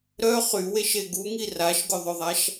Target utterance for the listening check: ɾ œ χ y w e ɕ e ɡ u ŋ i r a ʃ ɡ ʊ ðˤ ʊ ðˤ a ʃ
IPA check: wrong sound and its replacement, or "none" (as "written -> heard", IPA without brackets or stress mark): ɕ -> ʃ